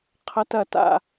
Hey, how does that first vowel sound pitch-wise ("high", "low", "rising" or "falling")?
high